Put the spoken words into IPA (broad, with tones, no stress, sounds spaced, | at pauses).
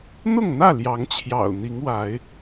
n̪ ʊ˥˨ ŋ n̪ ä˥˨ l j ɑ˨˦ ŋ t͡ɕʰ j ɑ̰˨˩ ʊ̯ n̪ i˨˦ ŋ w a˨˦ ɪ̯